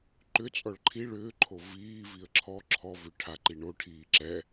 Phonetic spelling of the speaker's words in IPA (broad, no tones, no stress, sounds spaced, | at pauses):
ǃ ʏ t͡sʼ ɔ ɭ ǃʰ i ɭ ʏː ǃʰ o v iː v i ə̯ ǁʰ ɔ ǁʰ ɔ v ʏ ʈʰ a ǃ i ɳ o ʈʰ iː ǁ ɛ